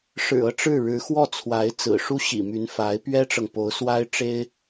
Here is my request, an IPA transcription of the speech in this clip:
ʂ ɻ̩˨˩ ɤ˥˧ ʈ͡ʂ ɻ̩˥˩ ɻ ɻ̩˧˥ x w ɔ˥˩ t͡sʰ w a˧˥ ɪ̯ t͡s ɹ̩˨˩ ʂ u˥ ɕ ḭ˨˩ m y˧˥ n f a˧˥ ɪ̯ p ɥ ɛ˥ ʈ͡ʂ ɤ˨ ŋ p o˧˥ ʊ̯ s w a˥ ɪ̯ ʈ͡ʂ e˥ ɪ̯

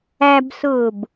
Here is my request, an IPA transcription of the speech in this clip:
æ b s ʊː b

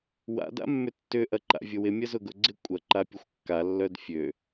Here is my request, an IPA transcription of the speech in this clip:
w a̰ d a̰ mː ʏ tː ʏ ʔ ɐ ǃ a̰ vʲ ʊ w ɪ mʲ ɐ z ʊ ɡ ʊ ɡ͡ǀ ɪ kʷʼ ɐ ǃ a pʲ ʊ xʷ kː a lː œ d fʲ ø

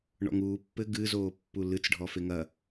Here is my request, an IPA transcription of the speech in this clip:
ɳ ɔ̰ ŋ uː pː ɘ ɡ ɨ z oː pː u l ɨ t͡s ɖʱ ɔ f e ŋ ɐ

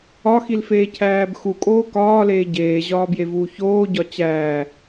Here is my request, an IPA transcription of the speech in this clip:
ɒ x i l f eː cʰ æː b x u kʼ oː k ɒː l eː ɟ eː ʑ ɒː b j e v uː ç oː ɟ ɒ t͡ɕ æː

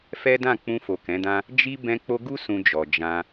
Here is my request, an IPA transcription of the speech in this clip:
f ɛ˦ d ã˦˨ k͡p ũ˧ f o˨ k ɛ̃˨˦ d ã˦ | d͡ʒ i˦ b ɛ̃˧ k͡p o˧ ɡ u˦ s ũ˧ d͡ʒ ɔ˨ d͡ʒ ã˧

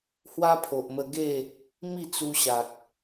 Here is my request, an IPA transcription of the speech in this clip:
h w a˦ pʰ o˨ ʔ m ə˧ ɡ e˥˧ | m i˥˧ t͡s u˧ ɕ a˨ k̚

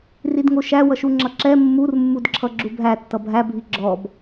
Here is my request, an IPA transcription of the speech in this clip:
r i d ŋ o ʃ æ w ʌ ʃ u ŋ͡ǁ ʌ ǁ ɛ mː u r mː u d ǁʰ ʌ ɡ͡ǁ u bʱ æ tː ʌ bʱ æ bʱ i ɡ͡ǁ ɔ b

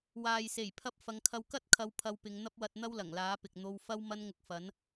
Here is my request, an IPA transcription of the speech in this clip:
w aː˨ j s e˨˩ j pʰ ɐ˧ p̚ f ɐ˨˧ ŋ kʰ ɐ˧ w k ɐ˥ t̚ kʰ ɐ˧ w pʰ ɐ˧ w p ɪ˨˧ ŋ n̪ ɐ˥ p̚ w ɐ˧ t̚ n̪ ɐ˥ w l ɐ˨˩ ŋ l aː˨˥ p ɪ˨ k̚ n̪ o˧ w f ɐ˥ w m ɐ˥ n ŋ ʊ˧ k̚ f ɐ˨˥ n

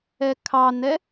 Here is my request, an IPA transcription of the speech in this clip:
ɛ kʰ ɑ n ɛ

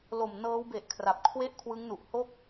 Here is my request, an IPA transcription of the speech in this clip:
l o˨˩ m n ɤː˦˥ w b e˨˩ ʔ kʰ r a˨˩ p̚ kʰ w e˥˩ ʔ kʰ w ɯ˦˥ ŋ n u˨˩ ʔ h o˥˩ k̚

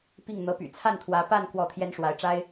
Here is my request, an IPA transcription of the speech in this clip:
p i˥˩ ŋ n̪ ɤ˧˥ p y̰˨˩ t͡sʰ a˥˩ n t̪ʰ w ä˧˥ p a˥˧ n k w ɔ˥˩ t̪ʰ j ɛ˥ n ʂ w a˧˥ ɪ̯ ʈ͡ʂ a˥ ɪ̯

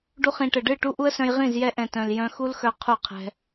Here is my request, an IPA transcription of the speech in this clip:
ɖ u˧ χ ĩ˨ ʈ ɘ˨ ɖ ɨ˦˨ ʈ u˦ ʔ u˦ ə̯ s œ̃˧ j ʁ ĩ˦˨ z j ɛ˧ ʔ ɛ̃˨ t œ̃˨ l j œ̃˧ x u˦ l x œ˧ qʰ u˦˨ qʰ ɛ̤˧

